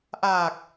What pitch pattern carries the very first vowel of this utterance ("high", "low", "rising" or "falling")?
low